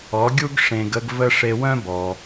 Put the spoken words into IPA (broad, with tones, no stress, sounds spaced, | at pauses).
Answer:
ɔ˩˥ ɡʲ u˥ ɡ ʂ ẽ˧ ɡ ə˥ ɡ v ə˥ ʂ e˧ w œ̃˥ b ɔ˩